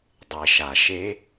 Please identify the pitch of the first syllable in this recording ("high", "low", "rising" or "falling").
low